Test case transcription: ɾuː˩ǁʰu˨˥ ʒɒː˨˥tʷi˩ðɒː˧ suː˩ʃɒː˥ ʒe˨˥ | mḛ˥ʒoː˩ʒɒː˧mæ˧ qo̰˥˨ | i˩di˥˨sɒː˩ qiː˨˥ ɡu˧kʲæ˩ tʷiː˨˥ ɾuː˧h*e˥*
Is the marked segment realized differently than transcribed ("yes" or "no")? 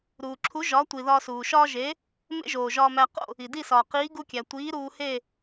yes